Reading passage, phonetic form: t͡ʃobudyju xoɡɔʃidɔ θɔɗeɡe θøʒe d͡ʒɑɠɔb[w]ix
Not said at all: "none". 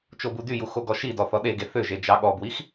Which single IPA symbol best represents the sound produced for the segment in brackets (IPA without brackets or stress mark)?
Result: w